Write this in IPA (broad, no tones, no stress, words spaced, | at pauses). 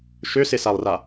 ʃøsɪsalˠra